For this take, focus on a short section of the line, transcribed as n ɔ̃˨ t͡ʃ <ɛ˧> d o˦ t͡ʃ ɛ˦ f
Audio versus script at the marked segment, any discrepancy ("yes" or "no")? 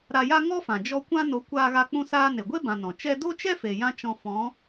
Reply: yes